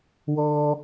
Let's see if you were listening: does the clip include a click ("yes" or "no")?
no